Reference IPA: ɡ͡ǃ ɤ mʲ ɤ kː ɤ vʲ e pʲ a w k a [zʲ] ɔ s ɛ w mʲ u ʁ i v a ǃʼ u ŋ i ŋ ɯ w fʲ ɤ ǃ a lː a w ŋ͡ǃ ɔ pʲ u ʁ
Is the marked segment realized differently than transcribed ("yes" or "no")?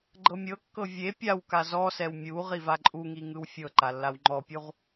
yes